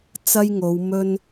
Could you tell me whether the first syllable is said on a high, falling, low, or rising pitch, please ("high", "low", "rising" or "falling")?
high